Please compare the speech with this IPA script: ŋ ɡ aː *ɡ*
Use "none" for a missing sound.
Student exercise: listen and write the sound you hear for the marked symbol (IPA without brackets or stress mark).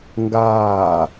none